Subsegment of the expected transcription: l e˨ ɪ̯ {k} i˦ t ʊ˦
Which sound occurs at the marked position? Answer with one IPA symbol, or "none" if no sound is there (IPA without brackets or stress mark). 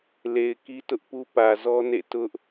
k